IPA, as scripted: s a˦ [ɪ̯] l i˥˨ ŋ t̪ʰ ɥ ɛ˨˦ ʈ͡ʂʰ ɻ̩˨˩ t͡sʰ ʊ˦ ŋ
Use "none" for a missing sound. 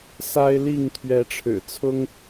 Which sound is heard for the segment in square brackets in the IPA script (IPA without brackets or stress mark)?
ɪ̯